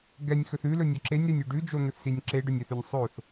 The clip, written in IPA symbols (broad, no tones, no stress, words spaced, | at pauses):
ɡɛnʲxɵθ ʉlɵnʲɔ ǁenʲɾɛnʲʉ ɖʉd͡ʒon̪ɵθsinʲ ǁeɖɵnʲɛθʉnʲ sˤoθ